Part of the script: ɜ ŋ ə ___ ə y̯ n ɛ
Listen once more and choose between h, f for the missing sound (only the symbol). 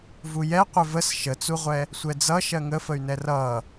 f